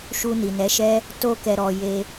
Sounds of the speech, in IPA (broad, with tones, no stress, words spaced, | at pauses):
ʃu˧ni˨nɛ˨˦ʃɛ˦ | to˧kɛ˨ɾɔ˨ je˧